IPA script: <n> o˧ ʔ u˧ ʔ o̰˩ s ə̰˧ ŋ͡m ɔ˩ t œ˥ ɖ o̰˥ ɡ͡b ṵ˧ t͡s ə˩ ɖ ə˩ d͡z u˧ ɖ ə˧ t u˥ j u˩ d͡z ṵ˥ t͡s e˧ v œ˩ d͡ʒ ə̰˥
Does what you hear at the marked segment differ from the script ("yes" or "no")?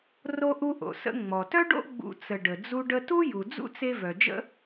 yes